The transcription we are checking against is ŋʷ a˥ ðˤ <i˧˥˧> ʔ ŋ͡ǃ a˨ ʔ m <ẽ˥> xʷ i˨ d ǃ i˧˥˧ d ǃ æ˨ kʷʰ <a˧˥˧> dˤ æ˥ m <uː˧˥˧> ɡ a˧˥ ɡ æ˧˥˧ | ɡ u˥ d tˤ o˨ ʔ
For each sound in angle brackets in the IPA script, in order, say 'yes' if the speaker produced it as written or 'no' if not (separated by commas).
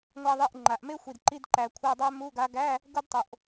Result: yes, no, yes, no